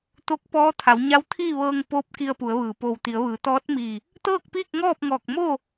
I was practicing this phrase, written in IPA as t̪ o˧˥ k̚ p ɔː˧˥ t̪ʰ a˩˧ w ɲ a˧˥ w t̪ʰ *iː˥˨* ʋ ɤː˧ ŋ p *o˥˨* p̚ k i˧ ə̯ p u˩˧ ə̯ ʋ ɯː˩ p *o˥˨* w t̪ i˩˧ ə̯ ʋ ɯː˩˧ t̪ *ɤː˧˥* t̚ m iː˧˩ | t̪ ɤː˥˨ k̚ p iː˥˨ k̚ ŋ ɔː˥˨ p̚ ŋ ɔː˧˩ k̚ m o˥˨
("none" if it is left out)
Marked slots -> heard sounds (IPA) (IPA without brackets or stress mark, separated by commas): iː˥˨, o˧˥, o˧˩, ɔː˧˥